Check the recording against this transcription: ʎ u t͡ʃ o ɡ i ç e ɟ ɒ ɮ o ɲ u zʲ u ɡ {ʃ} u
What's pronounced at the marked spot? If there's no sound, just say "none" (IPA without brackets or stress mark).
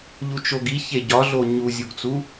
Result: t͡s